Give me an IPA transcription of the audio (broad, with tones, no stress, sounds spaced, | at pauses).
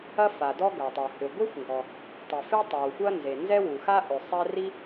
ɐ˥ f a˩ d ɔ˥ ɡ ɐ˩ tˤ ɐ˩ h ʏ˩ ɡʷ e˥ xʷ ŋ ɡ ɔ˩ | tˤ e˩ f e˥ tˤ æ˩ w xʷ ɐ˥ n z e˩ n z ɛ˥ w u˩ x a˥ ʔ ʏ˩ sˤ ɛ˥ r i˥